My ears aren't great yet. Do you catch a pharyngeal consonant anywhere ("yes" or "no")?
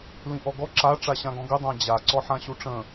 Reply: yes